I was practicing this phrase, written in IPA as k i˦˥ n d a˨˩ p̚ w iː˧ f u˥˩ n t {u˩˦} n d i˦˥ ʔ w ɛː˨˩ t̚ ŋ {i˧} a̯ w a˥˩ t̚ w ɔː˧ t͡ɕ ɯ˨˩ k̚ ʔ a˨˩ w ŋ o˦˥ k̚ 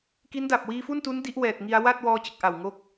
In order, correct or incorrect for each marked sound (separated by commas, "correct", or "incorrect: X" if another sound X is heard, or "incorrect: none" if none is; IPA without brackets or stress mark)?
incorrect: u˦˥, correct